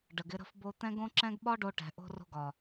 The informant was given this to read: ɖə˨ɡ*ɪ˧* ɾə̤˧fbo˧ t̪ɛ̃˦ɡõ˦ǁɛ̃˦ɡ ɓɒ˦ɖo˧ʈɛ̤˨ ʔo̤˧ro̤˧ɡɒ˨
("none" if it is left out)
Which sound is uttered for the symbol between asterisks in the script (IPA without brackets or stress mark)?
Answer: ɪ˧